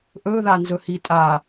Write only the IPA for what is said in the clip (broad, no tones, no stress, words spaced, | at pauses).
ʔɵðanzɵhi tʼa